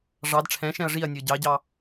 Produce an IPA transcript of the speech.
ʐ ɑ d ʈ͡ʂʰ ɛ̃ ʃ ɛ̃ ɐ̯ ʐ i ɐ̯ nʲ ə˞ ɟ ɑ ɟ ɑ

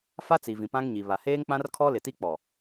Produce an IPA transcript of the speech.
f a˦ t͡s i˨ v ĩ˨ p ã˦ ŋ ɲ i˨ β a˨ h eː˦ ŋ k͡p ã˦ r kʰ ɔ˦ l ɪ˨ t i˦ k͡p ɔ˨

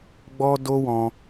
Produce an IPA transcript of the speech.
ɡ͡b ɔ˦ d o˦ w ɔ̃˧

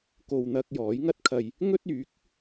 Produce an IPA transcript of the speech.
k o˨ w n̪ ɐ˧ k̚ j ɔː˨˥ j ŋ ɐ˥ t̚ kʰ ɐ˨ j | ŋ ɵ˥ t̚ yː˨˥ k̚

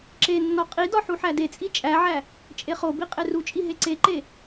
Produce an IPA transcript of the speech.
ǁ e nː ɒ qʼ i d ɒ ħ u ħ æ d e t͡sʼ i t͡ʃʼ æ ʕ æ | t͡ʃʼ e χ o b i qʼ e r u t͡ʃʼ i ɦ e ǀ e ǃ e

